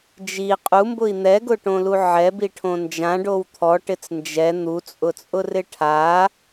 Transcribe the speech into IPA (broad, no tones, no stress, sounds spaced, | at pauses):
d͡ʒ i qʼ u m b ʊ i̯ n̪ ɛ ɡ ʊ ʈ õ l u ʕ ɛ b i ʈʰ õ n d͡ʒ ã ɖ o w t̪ʰ ɔ ʈ ɪ t͡s n d͡ʒ ɛ n̪ u t͡sʼ ʊ t͡sʼ ʊ r ɪ ʈʰ a